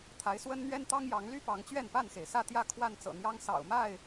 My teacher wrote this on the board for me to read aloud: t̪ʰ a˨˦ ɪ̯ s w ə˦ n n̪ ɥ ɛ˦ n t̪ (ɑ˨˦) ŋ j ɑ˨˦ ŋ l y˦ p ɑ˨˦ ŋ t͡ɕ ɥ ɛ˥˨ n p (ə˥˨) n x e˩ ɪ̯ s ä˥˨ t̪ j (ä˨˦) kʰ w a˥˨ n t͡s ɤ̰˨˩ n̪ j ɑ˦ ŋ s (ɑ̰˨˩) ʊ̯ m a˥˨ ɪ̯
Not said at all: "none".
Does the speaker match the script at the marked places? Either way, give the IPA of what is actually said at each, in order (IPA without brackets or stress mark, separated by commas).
ɑ˦, a˥˨, ä˥˨, ɑ̰˨˩